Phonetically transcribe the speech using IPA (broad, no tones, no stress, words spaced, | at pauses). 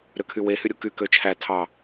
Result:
ɾøkʰywe hyɾʲuky køt͡ʃʰæ tʰɑ